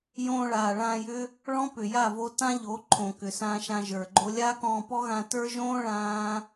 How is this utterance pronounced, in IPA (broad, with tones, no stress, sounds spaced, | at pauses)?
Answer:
j õː˧ ɭ aː˨ ɭ ãː˧ j ʏ˦ | ɭ ɔ̃˦ p ʏ˨ j a˦˨ v o˧ t ã˦ ʎ o˨˦ ǃʰ õ˨ k ʏ˨ s ãː˧ ʃ ã˧ ʒ ə˞˨ ɡ͡ǃ o˦ lʲ a˦ k ɔ̃ː˧ p ɔ˦ ɣ ã˧ t ə˞˦ ʒ õː˦ ɭ ãː˦